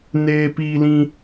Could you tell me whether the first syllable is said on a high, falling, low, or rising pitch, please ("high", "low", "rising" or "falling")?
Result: high